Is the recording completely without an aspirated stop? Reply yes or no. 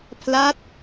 no